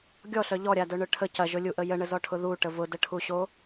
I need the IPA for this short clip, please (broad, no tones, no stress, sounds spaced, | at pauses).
ɡʲ ɔ ɬ œ ʎ ɔ ɾʲ a d œ ɳ œ ʈʰ ə c ɐ ʒ ʊ lʲ u ʔ ə j ə ɳ ə z ɔ ʈʰ ʊ ð u ʈ ə v ʊ d ə ʈʰ u ɕ o